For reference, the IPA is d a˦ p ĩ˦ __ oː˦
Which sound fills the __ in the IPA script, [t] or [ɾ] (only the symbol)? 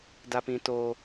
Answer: t